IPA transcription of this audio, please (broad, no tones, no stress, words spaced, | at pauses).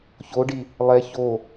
çoɖi | lˠɛ ço